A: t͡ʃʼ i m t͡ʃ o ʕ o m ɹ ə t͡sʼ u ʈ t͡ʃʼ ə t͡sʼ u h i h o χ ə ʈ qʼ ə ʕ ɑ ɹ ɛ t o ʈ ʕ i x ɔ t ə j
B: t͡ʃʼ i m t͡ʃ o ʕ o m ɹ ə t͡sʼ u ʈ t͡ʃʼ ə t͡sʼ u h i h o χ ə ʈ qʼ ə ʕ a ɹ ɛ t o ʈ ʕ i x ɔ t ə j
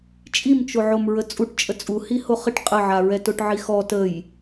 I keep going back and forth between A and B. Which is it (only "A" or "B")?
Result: B